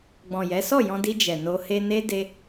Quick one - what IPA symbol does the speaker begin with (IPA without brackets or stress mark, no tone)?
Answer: ɡ͡b